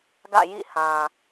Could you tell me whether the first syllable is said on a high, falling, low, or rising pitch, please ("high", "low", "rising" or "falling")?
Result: falling